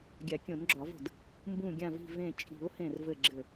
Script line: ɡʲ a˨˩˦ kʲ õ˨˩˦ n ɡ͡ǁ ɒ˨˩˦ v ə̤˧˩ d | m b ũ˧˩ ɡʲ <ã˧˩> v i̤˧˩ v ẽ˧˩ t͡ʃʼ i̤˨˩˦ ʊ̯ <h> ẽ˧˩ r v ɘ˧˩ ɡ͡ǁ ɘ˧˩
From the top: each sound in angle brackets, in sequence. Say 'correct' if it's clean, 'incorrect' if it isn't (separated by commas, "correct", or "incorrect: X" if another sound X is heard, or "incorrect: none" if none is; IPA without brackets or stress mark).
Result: correct, correct